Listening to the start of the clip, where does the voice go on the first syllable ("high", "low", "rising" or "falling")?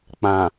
low